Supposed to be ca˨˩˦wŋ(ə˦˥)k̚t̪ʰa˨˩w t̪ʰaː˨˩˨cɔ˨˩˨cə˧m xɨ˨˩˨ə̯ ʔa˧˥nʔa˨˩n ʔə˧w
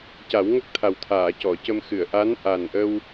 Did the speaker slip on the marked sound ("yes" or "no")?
no